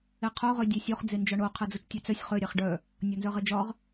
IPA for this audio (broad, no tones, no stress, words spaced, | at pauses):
eqʰo ʁødʲesʲoχ d͡zend͡ʒɒɳo qʰɛd͡zət͡ʃtʲœt͡sœsʲ χø ɾʲaχɖœ | nʲɒnzœʁɛd͡ʒɒʁ